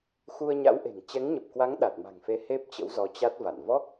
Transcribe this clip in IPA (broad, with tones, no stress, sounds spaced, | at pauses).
x u˧ ə̯ ɲ a̰˧˥ w ʔ e̤˨˩ ŋ t͡ɕ ɛ˨˦ ŋ ɲ ə˨˩ p̚ k w a˨˦ ŋ ɗ a˨˩ t̚ m a̤˨˩ ŋ f e˨˦ h e˦˥ p̚ t͡ɕ ə̰˧˥ w z ɔ˨˦ t͡ɕ a˦˥ t̚ v a̰˧˨ n v ɔ˦˥ k̚